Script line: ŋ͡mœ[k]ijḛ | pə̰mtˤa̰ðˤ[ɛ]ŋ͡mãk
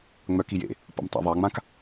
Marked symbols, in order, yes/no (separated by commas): yes, no